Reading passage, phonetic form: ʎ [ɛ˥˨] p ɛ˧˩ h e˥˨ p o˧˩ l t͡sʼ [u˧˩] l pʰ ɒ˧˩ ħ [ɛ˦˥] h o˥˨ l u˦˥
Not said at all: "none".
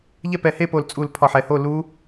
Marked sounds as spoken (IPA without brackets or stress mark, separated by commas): ɛ˥˨, u˧˩, ɛ˧˩